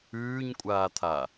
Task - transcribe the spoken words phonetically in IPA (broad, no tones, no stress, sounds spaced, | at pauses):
ʉː ɲ kʷʼ aː t̪ʰ a